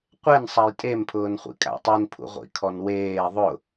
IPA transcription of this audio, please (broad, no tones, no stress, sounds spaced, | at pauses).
qʷ e n sˤ a j tʼ e m pʰ ʊː n χʷ ḭ kʼ a̰ tˤ i n pʰ ṵ ʁʷ ḭ kʰ ɔ n w eː ðˤ ʊ